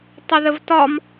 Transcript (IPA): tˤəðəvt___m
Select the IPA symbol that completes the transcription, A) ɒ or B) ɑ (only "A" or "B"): A